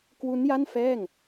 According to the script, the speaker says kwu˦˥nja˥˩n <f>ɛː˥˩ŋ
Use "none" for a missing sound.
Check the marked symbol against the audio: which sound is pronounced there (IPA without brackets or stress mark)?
f